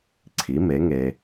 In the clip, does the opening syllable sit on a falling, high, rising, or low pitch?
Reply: rising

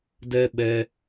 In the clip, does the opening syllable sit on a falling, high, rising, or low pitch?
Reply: high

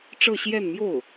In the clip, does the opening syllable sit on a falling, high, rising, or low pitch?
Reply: falling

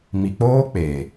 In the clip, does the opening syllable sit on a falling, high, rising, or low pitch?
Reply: low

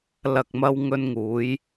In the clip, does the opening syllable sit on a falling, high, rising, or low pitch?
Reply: low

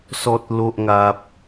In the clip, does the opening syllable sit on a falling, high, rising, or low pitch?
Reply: low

